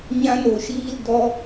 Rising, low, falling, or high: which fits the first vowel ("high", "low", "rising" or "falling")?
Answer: high